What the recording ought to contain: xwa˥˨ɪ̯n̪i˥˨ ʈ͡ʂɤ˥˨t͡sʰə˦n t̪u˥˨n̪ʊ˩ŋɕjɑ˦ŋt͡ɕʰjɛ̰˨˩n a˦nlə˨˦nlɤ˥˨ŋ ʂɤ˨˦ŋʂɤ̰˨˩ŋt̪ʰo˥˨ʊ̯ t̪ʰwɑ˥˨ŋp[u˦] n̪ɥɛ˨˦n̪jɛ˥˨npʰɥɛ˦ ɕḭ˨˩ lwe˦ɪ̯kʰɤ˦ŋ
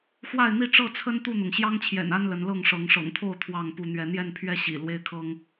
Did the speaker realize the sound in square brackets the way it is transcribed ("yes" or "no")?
yes